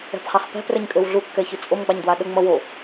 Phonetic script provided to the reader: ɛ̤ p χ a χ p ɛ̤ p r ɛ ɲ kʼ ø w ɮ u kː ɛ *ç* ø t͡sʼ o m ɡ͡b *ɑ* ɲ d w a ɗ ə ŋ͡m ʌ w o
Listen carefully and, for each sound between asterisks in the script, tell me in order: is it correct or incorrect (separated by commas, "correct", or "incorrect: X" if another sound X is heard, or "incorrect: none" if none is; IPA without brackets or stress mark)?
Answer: correct, correct